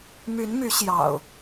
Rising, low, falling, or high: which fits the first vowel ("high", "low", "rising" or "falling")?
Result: rising